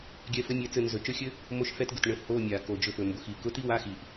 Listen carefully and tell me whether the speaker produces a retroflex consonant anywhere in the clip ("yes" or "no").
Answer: yes